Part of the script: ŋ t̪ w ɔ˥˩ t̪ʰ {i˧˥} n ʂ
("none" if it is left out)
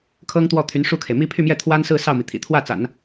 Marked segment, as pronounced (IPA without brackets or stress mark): y˧˥